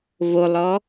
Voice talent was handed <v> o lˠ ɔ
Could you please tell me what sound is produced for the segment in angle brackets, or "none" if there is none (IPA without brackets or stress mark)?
v